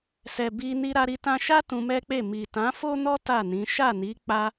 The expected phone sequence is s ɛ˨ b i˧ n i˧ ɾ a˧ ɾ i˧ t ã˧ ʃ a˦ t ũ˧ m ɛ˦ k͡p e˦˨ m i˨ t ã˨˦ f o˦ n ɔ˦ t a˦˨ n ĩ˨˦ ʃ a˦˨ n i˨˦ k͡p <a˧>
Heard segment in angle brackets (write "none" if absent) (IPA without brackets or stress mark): a˦